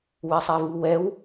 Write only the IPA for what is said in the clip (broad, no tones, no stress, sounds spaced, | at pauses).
w e sˤ ɛ v u w ɛ w